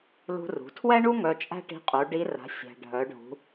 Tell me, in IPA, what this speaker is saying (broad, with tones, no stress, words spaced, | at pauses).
lṳ˧rṳ˩˧tʰwɛ˥ɳu˥ ŋœ˧t͡ʃʼæ̤˥ʈi̤˧˥qʼu˩˧ ɖi˧˥ra̤˩˧ sʲæ̤˩ ɖʱœ˩˧ɖʱṳ˩˧